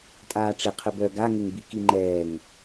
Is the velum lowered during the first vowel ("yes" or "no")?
no